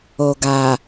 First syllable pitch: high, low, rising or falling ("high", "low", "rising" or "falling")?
low